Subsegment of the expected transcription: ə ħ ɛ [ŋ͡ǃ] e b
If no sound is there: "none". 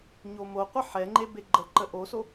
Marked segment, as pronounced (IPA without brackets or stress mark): ŋ͡ǃ